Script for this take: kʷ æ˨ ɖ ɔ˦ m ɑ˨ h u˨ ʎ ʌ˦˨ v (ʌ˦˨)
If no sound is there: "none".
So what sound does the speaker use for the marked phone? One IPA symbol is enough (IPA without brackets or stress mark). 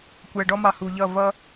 ʌ˦